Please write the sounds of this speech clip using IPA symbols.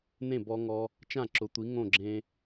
n ẽ˥˩ b ɔ˧ ŋ ɔ˧ | t͡ʃ ã˥˩ ǁ ʊ˩˥ tʷ i˩˥ ŋ õ˥˩ ɡ͡ǁ ẽ˧

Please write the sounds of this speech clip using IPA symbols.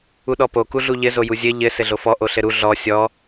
u ɗ ɔ p o k u ɮ u ʎ ɘ z o j u zʲ ɘ ʎ ɘ s ɘ ɮ o f ɔ ʔ o ɬ ɘ ɾ u ɮ ɔ sʲ ɔ

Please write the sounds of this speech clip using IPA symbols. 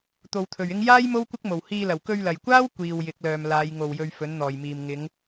t̪ o˧ w t̪ʰ ɵ˨ ɥ ɪ˥ ŋ j aː˥ j m o˥ w kʷ ɪ˥ k̚ m o˨˩ w h iː˧ l ɐ˨˩ w k ɵ˧ ɥ l ɐ˨˩ j kʷ aː˥ w kʷ iː˨ w j ɪ˨˥ k̚ l œː˨ m l aː˨˧ j ŋ o˨˩ w j ɵ˨ ɥ f ɵ˨˥ n n̪ ɔː˨˩ j m iː˨ m ŋ ɪ˨˧ ŋ

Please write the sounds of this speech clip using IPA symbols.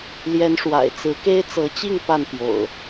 l j ɛ˨˦ n ʂ w a̰˨˩ ɪ̯ t͡s ɹ̩˨˦ k e˦ ɪ̯ t͡s ɤ˨˦ t͡ɕ i˥˨ ŋ p a˥˨ n p j o̰˨˩ ʊ̯

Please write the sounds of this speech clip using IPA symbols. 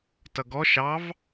t ʌ ɡ ɔ ʃ ɑ v

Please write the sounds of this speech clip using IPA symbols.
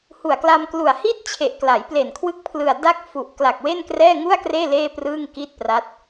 h u˨˩ a̯ k l a˧ m k l u˨˩ a̯ h i˦˥ t̚ t͡ɕʰ e˨˩ ʔ k l a˩˦ j p l e˨˩ n kʰ w ɯ˦˥ k̚ pʰ l ɯ˨˩ a̯ d a˦˥ k̚ f u˨˩ ʔ k l a˨˩ k̚ w e˥˩ n k r ɛː˥˩ ŋ u˥˩ a̯ k r eː˥˩ l eː˥˩ p r ɯː˥˩ ŋ k i˥˩ t̚ p r a˦˥ t̚

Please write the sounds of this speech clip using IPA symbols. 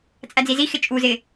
t͡sʼ æ d͡z i z i x ɪ t͡ʃʼ u z ɪ

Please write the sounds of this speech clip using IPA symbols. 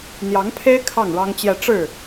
n̪ j ɑ˧˥ ŋ pʰ e˥ ɪ̯ kʰ ɑ˥˩ ŋ ɻ ɑ˥ ŋ t͡ɕ j ɛ˥˧ ʈ͡ʂ ɻ̩˥˩

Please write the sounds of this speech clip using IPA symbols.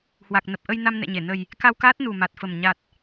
h w a˨˩ k̚ n ə˨˩ p̚ ʔ ə˧ j n a˧ m n ɛ̰˧˨ ɲ e˧˩ n ə˨˩ j | k a˧ w k aː˦˥ t̚ n u˨˩ m a˨˩ t̚ f ə˨˩ m ɲ a˨˩ t̚

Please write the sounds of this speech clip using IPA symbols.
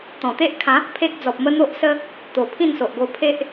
t̪ ɔ̃˨˩ t̪ e˦ ʔ kʰ ã˨˦ | pʰ e˦ k̚ d͡z ɔ˨ p̚ m ə˦ n̪ o˦ ʔ s ə˦ | t̪ o˨˩ pʰ ĩ˥˧ n s o˨ ʔ ɡ o˧ pʰ e˦ ʔ

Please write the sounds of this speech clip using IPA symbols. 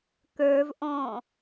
k ə˞ v ʔ ɔ̃

